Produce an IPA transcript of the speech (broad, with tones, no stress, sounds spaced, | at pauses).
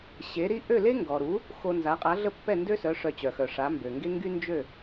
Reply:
ɕ e˩˥ ɾ i˥ ʔ ø˥˩ l e˥ ŋ ɡ ɔ˩ ɾ u˩˥ | x o˧ n z a˩˥ qʼ a˩˥ ɮ ə˥˩ pː ɛ˥˩ n d ø˥ s œ˩˥ ʂ œ˧ t͡ɕ œ˩ x œ˩ ʂ a˩˥ m b ø˩ ŋ ɡ e˥ ŋ ɡ y˥ n d͡ʒ ø˥˩